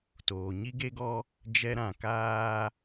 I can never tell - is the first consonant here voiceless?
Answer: yes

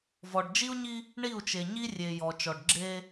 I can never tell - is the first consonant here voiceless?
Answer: no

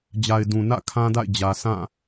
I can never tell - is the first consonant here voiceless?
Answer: no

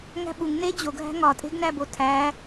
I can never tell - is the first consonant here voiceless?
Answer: no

